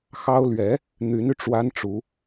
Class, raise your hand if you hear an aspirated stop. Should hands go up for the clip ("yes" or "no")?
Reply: no